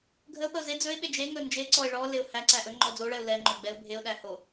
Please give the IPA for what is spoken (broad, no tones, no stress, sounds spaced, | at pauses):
ɡʱ ə ʊ̯ p ə ʊ̯ z e d͡z ɵ ɪ̯ ɓ e d͡ʒ e ŋ ɵ n d͡ʒ e ǀ ɔ ɪ̯ ɭ ɔ l e ʊ̯ h æ ǀ æ ʔ ɵ ŋ͡ǃ ɔ d͡z o ɭ ɛ ʊ̯ l ɛ ŋ͡ǃ ɵ ɡ͡b ɛ ʊ̯ bʱ e ʊ̯ ɗ æ h o